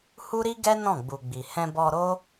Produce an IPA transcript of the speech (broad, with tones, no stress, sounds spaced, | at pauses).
h u˦ ɾ i˦ ɡ ɛ˦ n ɔ̃˦˨ ɡ͡b u˨ ɡ͡b i˨ h ɛ̃˧ b ɔ˧ ɾ o˦